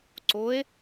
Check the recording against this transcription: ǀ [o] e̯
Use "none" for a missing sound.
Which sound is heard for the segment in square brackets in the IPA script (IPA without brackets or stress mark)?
o